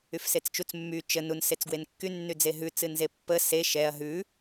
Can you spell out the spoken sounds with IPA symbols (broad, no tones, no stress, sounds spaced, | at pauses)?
y f s e t͡s t͡ʃ u t͡s mː y t͡ʃ ə n u n s e t͡s ɡ w e n kː y nː y d͡z e ɦ ʉ t͡s ɨ n z e pː ə s e ʃ ɛ ɐ̯ ɦ ʉ